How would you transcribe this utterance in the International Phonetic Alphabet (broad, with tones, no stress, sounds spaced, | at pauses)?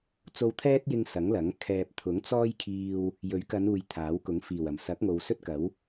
t͡s o˧ w t̪ʰ ɛː˥ t̚ j ɪ˧ ŋ s ɐ˨˥ ŋ l ɐ˨˥ ŋ kʰ ɛː˧ p̚ t̪ʰ ʊ˨˥ ŋ t͡s ɔː˥ j kʰ iː˧ w | j ɵ˨˥ ɥ k ɐ˨˧ n uː˨ j t̪ʰ aː˨˥ w k ʊ˨˥ ŋ f iː˨˩ w ɐ˨˩ m s ɐ˨˥ k̚ ŋ o˨ w s ɵ˥ t̚ k ɐ˨˥ w